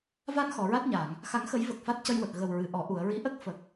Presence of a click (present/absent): absent